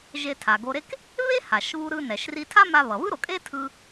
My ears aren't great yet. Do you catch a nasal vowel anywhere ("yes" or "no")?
no